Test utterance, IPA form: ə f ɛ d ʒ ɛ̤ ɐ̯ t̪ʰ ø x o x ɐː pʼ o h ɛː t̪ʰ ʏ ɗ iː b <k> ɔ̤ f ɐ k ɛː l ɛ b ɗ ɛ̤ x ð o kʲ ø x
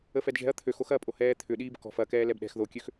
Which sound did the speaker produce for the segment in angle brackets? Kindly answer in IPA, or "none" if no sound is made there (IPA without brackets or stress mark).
k